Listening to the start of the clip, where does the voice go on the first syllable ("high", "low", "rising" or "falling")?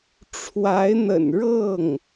rising